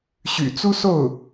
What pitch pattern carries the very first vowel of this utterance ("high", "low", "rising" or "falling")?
low